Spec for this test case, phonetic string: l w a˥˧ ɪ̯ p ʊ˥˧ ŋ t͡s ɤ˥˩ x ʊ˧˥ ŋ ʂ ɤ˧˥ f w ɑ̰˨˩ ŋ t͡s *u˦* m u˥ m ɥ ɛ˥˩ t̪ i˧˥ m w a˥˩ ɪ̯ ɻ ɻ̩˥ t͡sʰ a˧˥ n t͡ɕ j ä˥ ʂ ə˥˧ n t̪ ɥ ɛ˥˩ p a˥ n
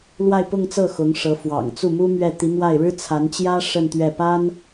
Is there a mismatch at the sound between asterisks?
yes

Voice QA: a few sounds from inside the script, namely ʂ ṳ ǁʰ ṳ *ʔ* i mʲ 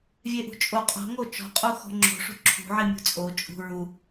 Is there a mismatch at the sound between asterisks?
yes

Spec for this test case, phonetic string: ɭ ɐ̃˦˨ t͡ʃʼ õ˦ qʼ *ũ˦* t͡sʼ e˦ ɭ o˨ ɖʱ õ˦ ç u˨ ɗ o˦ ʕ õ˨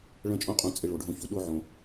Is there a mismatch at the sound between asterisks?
yes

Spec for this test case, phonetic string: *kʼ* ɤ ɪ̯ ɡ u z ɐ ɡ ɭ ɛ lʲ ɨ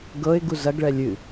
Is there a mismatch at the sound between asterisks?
yes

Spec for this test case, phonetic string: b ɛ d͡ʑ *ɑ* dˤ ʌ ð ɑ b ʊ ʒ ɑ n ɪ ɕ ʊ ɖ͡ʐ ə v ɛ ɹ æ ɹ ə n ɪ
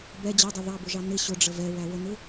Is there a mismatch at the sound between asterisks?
yes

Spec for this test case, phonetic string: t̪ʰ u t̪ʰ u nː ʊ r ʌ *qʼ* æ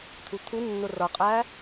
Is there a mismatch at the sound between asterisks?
no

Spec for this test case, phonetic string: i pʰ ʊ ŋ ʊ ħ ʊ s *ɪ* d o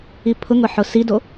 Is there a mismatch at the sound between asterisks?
yes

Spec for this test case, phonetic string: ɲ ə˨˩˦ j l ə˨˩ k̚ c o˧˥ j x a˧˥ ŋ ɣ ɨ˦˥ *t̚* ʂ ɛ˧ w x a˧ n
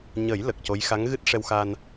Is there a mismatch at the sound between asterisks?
no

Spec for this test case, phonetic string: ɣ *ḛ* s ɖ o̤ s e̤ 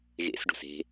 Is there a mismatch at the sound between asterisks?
no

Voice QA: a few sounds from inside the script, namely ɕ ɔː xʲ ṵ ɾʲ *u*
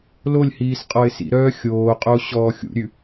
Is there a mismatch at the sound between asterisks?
yes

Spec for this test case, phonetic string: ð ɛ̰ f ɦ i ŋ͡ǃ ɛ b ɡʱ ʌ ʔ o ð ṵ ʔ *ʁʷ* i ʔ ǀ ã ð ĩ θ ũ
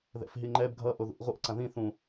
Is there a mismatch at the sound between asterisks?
no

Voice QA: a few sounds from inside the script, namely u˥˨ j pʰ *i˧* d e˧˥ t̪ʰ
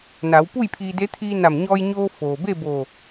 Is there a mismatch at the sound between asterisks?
yes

